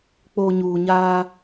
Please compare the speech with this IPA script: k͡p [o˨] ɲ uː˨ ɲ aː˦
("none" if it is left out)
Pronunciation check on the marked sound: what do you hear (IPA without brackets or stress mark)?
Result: o˨